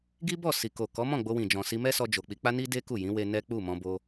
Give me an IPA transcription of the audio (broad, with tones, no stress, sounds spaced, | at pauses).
ɡ i˦ b ɔ˦˨ s i˨ k o˨ k ɔ˨˦ m ɔ̃˦˨ ɡ͡b o˧ w ĩ˨ d͡ʒ ɔ̃˨ s i˧ m ɛ˦ s ɔ˧ d͡ʒ o˨ k͡p i˧ k͡p a˦ n i˦ d e˦ k u˦˨ j ĩ˨˦ w e˧ n ɛ˦ k͡p u˦˨ m ɔ̃˧ b o˧